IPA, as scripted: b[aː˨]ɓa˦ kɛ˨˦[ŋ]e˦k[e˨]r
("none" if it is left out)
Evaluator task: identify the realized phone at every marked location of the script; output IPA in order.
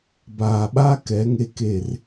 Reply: aː˨, ŋ, e˦˨

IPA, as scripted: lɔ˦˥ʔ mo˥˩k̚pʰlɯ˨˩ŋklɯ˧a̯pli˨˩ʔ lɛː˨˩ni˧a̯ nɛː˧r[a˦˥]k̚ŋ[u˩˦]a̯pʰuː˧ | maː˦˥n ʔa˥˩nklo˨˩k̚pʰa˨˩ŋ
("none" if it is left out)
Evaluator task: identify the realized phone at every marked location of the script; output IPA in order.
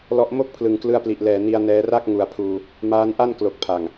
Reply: a˥˩, u˨˩

